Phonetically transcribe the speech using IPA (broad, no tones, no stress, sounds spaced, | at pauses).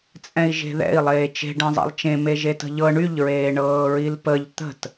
t͡sʼ ɛ̃ i̯ ʒ e̤ ð ɛ̰ i̯ lˠ eː t͡ʃ e̤ ɖ ɛ̃ zˤ ɛ̰ lˠ t͡ʃ ẽ m e ʒ e t ə̤ ʎ ɤ ɳ y ʎ ɹ eː ɳ ɤː ɹ i l p ə ʎ t̪ ə̤ t